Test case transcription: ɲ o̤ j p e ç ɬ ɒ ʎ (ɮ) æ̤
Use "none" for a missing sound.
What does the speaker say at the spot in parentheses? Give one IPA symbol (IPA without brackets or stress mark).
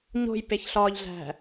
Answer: ɮ